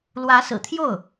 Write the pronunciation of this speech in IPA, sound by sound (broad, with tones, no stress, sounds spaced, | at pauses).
l w ä˧˥ s ɹ̩˨˩ t̪ʰ j o˥˩ ʊ̯